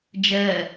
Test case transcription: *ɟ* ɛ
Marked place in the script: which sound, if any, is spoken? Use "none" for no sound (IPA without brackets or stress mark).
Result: d͡ʒ